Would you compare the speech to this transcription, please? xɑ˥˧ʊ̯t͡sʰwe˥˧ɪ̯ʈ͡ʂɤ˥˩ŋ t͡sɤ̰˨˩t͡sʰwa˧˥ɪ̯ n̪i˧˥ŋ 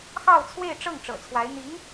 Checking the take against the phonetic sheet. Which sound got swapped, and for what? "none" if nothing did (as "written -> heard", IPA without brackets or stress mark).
t͡s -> ʈ͡ʂ